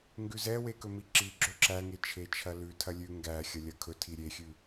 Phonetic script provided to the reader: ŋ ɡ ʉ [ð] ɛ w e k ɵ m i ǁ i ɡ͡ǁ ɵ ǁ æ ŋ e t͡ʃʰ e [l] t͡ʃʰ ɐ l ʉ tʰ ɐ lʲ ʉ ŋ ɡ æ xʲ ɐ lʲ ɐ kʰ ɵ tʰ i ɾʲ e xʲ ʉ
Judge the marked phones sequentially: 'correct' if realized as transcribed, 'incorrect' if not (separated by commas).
incorrect, incorrect